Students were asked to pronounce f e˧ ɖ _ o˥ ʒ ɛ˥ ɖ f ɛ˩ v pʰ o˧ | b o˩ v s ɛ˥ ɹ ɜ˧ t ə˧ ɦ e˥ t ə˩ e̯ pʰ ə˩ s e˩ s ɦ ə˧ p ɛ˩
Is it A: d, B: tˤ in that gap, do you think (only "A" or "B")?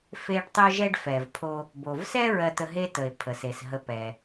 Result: B